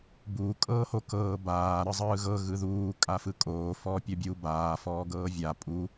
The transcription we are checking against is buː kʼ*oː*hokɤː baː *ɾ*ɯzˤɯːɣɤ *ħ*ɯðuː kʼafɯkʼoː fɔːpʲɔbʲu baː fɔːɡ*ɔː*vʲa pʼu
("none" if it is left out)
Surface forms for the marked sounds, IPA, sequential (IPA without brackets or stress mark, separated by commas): ɤː, ɾ, ɣ, ɤː